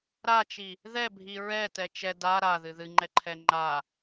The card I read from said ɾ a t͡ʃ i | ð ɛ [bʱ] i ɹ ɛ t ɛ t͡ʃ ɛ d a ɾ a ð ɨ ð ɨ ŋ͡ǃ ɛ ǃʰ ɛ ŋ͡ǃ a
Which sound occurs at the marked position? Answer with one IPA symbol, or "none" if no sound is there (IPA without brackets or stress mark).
bʱ